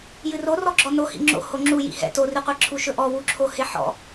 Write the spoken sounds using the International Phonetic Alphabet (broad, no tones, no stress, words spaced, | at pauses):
jɨrorɔɡ͡ǁɔ nohḭ ŋ͡ǁo̰ hoŋ͡ǁu jḭhɛ̰ toriqʷeǁʰu ʃɵʔɔ wuǁʰoheħɔ̰